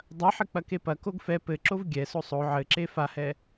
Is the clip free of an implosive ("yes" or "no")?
yes